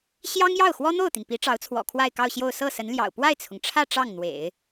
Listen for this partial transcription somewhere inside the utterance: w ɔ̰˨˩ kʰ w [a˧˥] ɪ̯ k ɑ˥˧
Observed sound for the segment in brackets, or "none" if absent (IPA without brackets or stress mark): a˥˧